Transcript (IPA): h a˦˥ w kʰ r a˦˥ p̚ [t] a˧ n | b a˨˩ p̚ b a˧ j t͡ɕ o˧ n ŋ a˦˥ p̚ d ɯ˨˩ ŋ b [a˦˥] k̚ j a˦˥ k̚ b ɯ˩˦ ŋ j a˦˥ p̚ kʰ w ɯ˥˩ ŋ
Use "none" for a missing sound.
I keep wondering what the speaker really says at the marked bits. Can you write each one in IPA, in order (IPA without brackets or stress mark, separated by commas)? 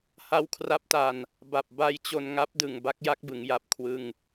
t, a˦˥